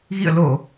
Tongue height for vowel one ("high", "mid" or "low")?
high